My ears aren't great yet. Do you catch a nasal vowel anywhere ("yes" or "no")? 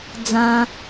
yes